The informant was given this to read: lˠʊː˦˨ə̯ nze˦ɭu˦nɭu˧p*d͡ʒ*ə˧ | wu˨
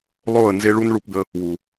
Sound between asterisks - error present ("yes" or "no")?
yes